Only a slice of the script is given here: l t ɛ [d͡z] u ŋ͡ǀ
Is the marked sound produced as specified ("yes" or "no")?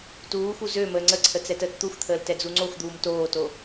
yes